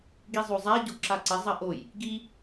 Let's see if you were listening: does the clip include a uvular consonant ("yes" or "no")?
no